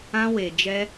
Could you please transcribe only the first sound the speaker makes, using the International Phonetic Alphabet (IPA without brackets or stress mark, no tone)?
ã